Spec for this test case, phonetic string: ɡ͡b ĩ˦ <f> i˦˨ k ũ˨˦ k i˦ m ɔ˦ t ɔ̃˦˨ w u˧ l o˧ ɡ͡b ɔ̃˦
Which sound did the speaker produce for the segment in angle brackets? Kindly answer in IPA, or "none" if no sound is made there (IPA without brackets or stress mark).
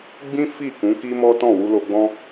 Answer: f